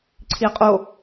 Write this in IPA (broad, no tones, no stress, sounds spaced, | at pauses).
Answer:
ǀʰ i ɐ̯ qʼ o